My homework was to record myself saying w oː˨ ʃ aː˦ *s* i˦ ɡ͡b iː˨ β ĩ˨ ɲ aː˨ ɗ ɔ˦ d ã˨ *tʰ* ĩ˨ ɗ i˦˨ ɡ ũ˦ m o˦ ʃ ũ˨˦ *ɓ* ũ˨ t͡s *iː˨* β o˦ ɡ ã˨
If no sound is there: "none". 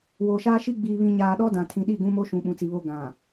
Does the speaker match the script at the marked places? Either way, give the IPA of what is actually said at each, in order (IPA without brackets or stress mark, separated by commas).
ʃ, tʰ, ɓ, i˨